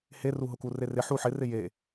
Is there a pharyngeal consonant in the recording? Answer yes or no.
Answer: yes